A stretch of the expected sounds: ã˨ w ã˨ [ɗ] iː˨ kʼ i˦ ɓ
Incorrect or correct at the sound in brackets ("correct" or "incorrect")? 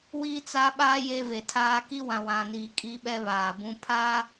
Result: incorrect